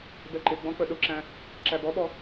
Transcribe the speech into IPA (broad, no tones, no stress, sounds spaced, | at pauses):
b ɛ ǃ ɪ ɡ͡b ɔ̃ k͡p ə ɗ ʊ ǁ æ̃ | ǁ æ b ɔ ɓ ɔ